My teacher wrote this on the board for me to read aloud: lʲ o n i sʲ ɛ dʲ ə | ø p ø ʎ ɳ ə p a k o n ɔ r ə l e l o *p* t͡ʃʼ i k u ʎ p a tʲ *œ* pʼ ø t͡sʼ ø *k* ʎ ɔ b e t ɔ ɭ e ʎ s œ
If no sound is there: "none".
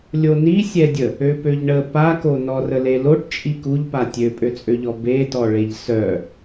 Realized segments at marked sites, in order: ʈ, ø, none

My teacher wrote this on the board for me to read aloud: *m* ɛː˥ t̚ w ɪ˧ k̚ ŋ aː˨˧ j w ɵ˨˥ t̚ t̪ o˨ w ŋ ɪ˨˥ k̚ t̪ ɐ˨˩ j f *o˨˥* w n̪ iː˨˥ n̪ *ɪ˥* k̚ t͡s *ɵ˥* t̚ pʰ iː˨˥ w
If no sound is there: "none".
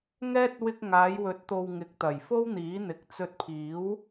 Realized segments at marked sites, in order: ŋ, o˥, ɪ˨, ɵ˧

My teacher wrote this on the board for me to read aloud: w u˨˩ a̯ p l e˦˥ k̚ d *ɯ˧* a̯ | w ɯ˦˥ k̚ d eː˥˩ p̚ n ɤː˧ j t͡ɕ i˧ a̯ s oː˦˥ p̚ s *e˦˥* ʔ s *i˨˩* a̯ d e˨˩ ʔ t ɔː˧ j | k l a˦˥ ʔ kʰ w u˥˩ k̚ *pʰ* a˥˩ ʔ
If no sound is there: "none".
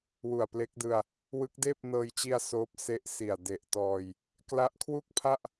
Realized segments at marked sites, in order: ɯ˧, e˦˥, i˨˩, pʰ

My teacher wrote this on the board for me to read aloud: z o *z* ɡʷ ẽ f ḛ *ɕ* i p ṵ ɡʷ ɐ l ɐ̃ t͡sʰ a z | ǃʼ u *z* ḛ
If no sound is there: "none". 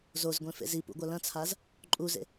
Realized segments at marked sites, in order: z, z, z

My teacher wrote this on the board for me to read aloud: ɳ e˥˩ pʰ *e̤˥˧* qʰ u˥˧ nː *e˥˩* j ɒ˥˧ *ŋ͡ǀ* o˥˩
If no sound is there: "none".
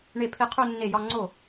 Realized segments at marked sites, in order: e˥˧, e˥˩, ŋ͡ǀ

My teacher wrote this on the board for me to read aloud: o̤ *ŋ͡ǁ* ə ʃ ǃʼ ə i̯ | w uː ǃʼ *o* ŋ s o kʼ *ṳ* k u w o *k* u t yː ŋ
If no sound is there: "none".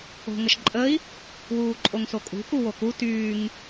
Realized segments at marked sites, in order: ŋ, o, ṳ, k

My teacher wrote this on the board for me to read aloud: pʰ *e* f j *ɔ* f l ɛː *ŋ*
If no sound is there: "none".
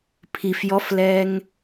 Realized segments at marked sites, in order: i, ɔ, ŋ

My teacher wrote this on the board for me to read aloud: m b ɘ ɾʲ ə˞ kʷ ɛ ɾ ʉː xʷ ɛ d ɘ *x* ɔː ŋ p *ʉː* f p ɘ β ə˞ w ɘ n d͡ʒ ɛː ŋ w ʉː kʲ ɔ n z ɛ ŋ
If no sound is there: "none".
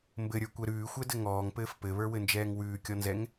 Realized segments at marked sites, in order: ŋ, ɘː

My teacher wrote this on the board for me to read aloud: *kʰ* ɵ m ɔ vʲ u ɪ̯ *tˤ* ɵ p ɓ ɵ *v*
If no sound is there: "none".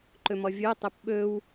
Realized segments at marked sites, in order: ǃ, tˤ, w

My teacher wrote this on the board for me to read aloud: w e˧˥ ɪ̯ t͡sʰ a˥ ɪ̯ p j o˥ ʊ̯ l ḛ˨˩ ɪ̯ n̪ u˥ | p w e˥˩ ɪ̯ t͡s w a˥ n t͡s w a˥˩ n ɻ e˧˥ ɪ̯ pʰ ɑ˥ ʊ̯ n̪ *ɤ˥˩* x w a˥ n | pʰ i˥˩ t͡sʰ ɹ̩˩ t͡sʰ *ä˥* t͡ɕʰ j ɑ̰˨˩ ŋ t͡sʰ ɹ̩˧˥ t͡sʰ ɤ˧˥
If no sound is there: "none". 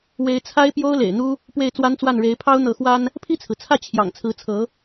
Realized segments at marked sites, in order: ɤ˧˥, ä˥˩

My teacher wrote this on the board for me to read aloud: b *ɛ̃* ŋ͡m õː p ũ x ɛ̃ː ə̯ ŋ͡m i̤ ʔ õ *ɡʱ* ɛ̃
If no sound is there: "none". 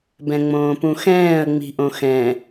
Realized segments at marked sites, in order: ɛ̃, x

